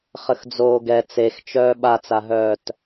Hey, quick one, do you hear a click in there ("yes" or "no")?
no